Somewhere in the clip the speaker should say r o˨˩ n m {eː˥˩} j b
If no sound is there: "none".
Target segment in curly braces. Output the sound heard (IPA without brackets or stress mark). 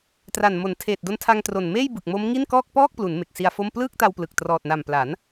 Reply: eː˥˩